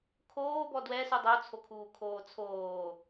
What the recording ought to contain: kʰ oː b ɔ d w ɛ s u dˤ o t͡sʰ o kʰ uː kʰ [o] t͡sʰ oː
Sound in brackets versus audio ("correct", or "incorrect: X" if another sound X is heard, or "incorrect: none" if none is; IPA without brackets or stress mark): incorrect: oː